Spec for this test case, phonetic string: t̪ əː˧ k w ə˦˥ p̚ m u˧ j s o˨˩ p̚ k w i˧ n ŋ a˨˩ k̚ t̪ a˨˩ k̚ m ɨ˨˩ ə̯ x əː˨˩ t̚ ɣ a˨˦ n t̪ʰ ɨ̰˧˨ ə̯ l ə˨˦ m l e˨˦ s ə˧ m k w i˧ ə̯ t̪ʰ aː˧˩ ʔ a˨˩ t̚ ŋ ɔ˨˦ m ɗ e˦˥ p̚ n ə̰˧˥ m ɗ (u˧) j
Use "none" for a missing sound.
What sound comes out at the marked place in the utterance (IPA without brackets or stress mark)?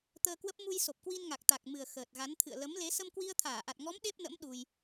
u˧